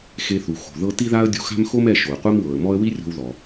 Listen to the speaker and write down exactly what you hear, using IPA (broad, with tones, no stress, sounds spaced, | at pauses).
x e˧ θ u˩ x o̤˩ ð ɤ˧ t i˥ ð a˥ ə̯ dʲ u˧ x a̤˥ m x o˥ m ɛ˧ ʃ o˩ ə̯ qʷ ɛ˥ m w ɤ˩ ə̯ m ɔ˥ ə̯ w i˥ rʲ o̤˧ w ð ɔ˩